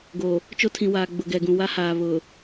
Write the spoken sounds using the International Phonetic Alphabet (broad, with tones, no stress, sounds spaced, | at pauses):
ɡ o˨ | t͡ʃ o˦ tʰ ĩ˨ w aː˨ ɡ͡b ʊ˨ ɡ ɛ˨ ɡ ũ˨ w a˦ h aː˨ β ʊ˨